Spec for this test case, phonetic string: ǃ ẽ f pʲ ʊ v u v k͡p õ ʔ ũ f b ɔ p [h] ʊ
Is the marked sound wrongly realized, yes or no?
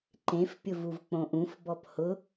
no